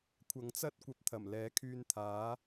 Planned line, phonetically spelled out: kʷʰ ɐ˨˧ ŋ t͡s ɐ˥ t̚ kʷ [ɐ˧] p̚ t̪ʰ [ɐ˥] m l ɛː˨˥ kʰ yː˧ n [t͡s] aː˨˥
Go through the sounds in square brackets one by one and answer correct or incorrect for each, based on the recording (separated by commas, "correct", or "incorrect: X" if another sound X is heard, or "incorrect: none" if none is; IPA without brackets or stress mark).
correct, incorrect: ɐ˨˩, incorrect: t̪ʰ